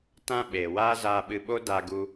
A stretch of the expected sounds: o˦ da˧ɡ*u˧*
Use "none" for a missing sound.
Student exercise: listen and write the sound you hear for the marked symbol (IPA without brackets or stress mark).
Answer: u˧